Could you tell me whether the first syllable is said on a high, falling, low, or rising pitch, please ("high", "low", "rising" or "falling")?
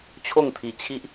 falling